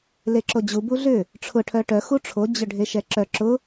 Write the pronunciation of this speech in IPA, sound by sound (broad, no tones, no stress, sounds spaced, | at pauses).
l e ǁ o d͡ʑ u b u ɮ ʏ | ʈ͡ʂʰ ʊ ʈʰ œ ʈ œ x u ʈ͡ʂʰ o d͡ʑ ʏ ɖʱ e ʃ ɛ ǁ œ ǁ ʊ